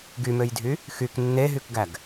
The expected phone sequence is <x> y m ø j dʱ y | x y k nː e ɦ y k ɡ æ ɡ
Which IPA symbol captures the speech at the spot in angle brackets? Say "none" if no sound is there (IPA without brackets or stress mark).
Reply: ɡ